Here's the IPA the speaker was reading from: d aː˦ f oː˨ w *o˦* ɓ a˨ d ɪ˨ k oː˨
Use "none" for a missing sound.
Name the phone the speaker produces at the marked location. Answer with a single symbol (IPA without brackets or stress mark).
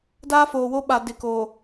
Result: o˦